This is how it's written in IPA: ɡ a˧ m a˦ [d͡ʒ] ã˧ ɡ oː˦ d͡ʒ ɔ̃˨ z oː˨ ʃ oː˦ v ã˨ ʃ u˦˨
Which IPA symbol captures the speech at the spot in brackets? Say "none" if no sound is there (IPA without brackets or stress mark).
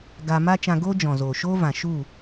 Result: t͡ʃ